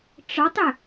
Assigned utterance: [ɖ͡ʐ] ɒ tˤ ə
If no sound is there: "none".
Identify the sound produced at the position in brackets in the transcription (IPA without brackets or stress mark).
ʈ͡ʂ